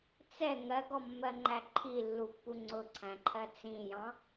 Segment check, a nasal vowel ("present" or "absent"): present